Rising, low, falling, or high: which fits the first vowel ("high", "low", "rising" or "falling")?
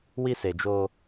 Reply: high